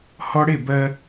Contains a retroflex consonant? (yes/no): yes